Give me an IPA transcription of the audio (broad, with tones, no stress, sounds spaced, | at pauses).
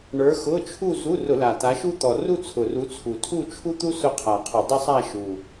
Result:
ɳ ə˞˨˦ x ʊ˧˥˧ t͡ʃʰ u˥˧ z u˧˥˧ r ʊ˧˩˧ l a˨˩ t a˨˦ ʃ u˥ t̪ ɔ˨˩ r u˥˧ t͡sʰ ʊ˨˩ r u˨˦ t͡sʰ u˨˩ tʰ u˥˧ t͡ʃʰ u˥ t̪ u˥ s ʊ˥ qʰ a˨˩ qʰ ʊ˧˩˧ dˤ ʊ˥ sˤ a˥˧ ʃ u˨˩